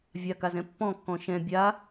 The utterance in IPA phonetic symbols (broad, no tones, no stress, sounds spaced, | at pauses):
vʲ a k a z ɛ̃ pː ɔ̃ kː ɔ̃ ʃ ɛ̃ bʲ a